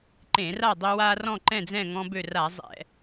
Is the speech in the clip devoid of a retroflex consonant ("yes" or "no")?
yes